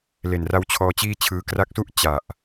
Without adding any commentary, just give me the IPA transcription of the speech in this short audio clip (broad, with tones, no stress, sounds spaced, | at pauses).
l e˨˩ n r a˦˥ w t͡ɕʰ ɔː˧ t͡ɕ iː˥˩ t͡ɕʰ ɯː˧ k r a˦˥ k̚ s u˥˩ ʔ t͡ɕ a˨˩ ʔ